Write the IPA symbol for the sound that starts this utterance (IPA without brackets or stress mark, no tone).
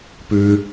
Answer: p